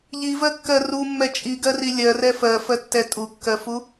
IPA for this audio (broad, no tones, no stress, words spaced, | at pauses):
ʎivɜkːɜ rumːɛ t͡ʃʼiɡɜri lʲɜrɛ fɜfɜtːɛ tʼukːɜfu